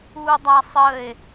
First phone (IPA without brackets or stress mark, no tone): u